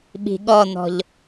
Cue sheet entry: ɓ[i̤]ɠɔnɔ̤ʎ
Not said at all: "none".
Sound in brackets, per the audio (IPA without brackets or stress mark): i̤